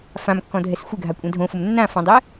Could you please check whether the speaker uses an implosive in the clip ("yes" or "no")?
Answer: no